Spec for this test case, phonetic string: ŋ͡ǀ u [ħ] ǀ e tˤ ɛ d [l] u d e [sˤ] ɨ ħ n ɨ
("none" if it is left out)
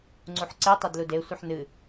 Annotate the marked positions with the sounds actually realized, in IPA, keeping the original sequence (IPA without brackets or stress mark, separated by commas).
ħ, l, sʷ